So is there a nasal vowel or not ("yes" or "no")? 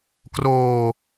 no